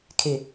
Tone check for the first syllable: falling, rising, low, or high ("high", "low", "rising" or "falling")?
low